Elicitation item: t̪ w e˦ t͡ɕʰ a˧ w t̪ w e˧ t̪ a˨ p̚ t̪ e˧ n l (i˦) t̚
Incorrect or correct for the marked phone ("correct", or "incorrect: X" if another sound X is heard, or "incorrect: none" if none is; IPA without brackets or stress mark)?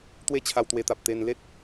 incorrect: e˦